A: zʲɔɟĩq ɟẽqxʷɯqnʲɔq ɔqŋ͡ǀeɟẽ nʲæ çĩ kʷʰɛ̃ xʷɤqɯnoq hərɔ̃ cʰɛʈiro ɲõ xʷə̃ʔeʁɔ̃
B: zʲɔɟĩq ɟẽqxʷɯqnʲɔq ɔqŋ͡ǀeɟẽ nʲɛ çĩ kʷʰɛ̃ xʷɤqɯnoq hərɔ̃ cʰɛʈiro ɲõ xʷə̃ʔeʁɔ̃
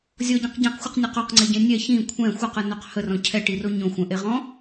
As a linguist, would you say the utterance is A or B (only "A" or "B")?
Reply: B